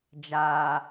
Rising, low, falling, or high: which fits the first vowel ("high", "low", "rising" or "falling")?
low